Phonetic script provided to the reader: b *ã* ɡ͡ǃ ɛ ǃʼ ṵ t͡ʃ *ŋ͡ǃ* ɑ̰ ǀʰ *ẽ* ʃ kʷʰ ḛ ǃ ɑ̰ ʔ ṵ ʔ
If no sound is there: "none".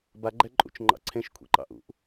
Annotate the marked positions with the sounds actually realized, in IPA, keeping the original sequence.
a, ŋ͡ǃ, ẽ

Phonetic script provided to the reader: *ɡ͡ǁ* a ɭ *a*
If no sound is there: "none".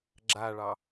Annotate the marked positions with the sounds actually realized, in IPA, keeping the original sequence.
ɡ͡ǁ, ɑ

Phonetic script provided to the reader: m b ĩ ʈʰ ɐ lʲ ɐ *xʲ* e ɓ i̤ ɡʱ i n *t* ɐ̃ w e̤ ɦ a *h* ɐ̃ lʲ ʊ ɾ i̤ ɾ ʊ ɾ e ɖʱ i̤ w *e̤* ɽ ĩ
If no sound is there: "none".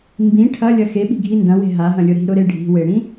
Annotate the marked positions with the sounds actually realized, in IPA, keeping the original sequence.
x, d, ɦ, e

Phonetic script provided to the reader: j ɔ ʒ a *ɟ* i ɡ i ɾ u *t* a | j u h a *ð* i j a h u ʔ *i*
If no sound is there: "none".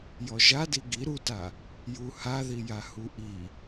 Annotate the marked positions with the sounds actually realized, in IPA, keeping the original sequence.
d, t, ð, i

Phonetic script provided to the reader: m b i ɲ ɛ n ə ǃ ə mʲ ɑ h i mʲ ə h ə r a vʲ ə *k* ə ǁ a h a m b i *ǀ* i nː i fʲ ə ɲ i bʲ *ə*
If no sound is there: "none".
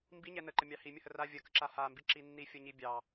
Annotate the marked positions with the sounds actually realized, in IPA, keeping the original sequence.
k, ǁ, ɑ

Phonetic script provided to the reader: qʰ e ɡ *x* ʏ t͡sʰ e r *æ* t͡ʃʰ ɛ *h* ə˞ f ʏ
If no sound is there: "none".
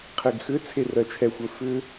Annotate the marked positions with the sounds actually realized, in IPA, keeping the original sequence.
x, ɜ, xʷ

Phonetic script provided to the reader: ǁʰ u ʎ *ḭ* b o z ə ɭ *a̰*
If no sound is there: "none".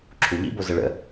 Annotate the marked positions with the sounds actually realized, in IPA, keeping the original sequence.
ḭ, ə̰

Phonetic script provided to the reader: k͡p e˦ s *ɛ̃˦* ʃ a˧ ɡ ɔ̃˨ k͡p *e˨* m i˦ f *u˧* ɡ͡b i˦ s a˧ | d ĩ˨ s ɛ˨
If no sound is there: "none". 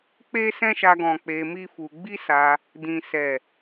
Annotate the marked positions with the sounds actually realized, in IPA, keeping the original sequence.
ɛ̃˦, e˧, u˧

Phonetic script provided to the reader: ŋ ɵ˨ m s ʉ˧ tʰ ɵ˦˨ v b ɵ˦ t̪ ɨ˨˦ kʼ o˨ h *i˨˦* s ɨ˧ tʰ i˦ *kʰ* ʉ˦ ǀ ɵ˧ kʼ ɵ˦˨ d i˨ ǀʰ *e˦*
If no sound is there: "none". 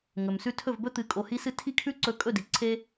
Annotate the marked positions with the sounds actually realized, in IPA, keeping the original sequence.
i˧, kʰ, e˦

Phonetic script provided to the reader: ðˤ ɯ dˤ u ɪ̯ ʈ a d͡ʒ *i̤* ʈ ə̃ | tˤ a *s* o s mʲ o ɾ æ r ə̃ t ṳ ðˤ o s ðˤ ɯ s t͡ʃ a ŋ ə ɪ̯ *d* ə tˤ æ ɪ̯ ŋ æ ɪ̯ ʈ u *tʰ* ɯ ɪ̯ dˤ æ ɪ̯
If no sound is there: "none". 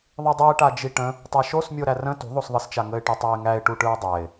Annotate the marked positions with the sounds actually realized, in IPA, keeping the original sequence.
i, ʃ, ʈ, ʈ

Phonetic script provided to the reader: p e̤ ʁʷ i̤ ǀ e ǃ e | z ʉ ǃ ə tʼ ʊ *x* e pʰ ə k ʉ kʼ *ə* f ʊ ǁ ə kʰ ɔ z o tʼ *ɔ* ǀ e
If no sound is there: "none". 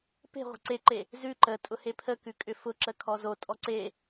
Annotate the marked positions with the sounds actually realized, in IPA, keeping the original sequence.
h, ʏ, ɔ

